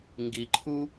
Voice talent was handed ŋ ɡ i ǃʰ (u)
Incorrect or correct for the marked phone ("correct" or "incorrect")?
correct